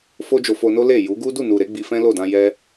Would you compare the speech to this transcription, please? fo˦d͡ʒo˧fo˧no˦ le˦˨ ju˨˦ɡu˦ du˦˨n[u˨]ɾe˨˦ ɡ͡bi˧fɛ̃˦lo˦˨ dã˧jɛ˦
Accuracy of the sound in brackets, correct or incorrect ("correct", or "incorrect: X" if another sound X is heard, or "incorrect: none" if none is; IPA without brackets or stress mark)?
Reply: correct